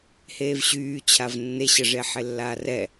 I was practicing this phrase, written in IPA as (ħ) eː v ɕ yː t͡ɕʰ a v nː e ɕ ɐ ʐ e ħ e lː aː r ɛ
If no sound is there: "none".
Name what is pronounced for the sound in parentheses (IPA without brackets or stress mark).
h